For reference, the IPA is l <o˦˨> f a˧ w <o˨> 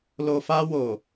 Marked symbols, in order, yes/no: no, yes

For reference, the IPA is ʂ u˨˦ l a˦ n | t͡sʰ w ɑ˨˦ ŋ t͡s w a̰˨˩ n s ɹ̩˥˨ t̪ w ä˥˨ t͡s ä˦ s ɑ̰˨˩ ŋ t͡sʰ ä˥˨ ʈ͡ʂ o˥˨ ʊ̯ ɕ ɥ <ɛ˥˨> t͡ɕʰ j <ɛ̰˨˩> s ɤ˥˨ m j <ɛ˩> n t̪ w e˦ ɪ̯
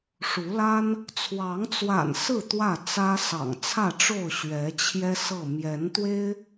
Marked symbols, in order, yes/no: no, no, no

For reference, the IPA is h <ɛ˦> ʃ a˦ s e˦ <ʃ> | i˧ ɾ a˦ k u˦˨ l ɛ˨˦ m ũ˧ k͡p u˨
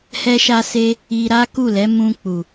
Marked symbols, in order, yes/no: yes, no

